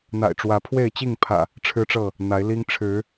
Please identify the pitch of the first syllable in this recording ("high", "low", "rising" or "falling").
low